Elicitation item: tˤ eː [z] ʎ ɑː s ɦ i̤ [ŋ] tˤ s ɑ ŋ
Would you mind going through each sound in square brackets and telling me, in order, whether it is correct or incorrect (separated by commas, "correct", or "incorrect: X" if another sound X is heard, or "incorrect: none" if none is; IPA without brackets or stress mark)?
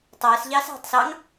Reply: incorrect: s, incorrect: none